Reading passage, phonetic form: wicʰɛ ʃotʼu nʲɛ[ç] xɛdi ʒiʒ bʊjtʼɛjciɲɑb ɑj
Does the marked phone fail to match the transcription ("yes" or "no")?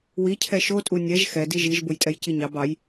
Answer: yes